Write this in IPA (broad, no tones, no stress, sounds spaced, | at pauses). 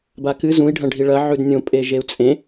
b a k ɨ z ũ i̯ ɖʱ ɐ̃ ɖʱ i ɭ ɐ ʕ ʉ d nʲ õ pʼ e ʒ e u̯ t͡sʼ ẽ